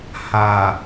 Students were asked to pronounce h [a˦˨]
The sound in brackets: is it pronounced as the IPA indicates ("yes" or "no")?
no